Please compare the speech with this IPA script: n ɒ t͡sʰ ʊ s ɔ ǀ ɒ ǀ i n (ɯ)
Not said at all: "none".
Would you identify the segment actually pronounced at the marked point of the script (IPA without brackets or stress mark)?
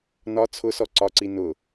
ʊ